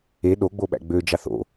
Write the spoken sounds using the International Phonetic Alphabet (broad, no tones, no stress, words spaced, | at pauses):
e ɗoɡ͡bo ɓæ̰ɡ͡bød͡ʒɑθ o̰